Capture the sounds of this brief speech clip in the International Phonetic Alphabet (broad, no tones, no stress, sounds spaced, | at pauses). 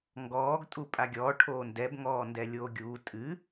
ŋ ɡ ɔː ɡ tʼ u pʼ a ɡʲ ɔː ʈʰ oː n d ɛ b ŋ ɔː n d ɛ lʲ oː ɡʲ uː tʼ ɨ